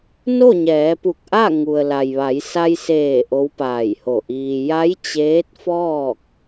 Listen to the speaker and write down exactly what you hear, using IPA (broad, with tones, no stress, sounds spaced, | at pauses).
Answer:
n o˥˨ ɲ ɛː˩˧ p u˧˩ k̚ ʔ a˥˨ ŋ u˩ ə̯ l a˩ j ʋ a˩˧ j s a˧ j s eː˧˩ ʔ o˧˥ w p aː˧˩ j h o˧˩ ʔ iː˧ j a˧˥ j t͡ɕ eː˧˥ t̚ f ɔː˥˨ k̚